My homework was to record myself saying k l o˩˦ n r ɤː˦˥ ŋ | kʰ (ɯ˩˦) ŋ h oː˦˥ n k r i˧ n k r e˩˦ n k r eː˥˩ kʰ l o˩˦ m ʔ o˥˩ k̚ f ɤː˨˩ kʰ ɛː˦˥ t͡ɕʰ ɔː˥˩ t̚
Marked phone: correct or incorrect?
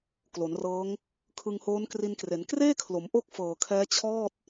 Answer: incorrect